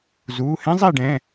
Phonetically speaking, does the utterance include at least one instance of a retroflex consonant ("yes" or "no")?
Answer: yes